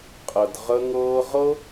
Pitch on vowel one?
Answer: low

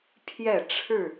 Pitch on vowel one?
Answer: falling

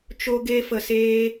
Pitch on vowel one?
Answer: high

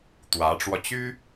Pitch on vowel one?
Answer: rising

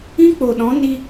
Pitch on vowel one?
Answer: high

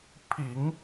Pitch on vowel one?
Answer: low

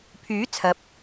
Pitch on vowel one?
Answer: rising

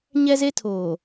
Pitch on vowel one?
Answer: high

